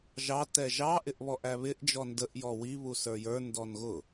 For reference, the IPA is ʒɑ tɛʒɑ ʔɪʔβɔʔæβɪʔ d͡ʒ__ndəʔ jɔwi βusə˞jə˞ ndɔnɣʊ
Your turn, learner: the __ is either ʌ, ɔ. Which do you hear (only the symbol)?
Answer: ɔ